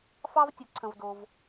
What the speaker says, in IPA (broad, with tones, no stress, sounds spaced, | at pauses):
f ɑ˦ v tʲ ɵ˧ ǀʰ ə̃˧ v d o˧ v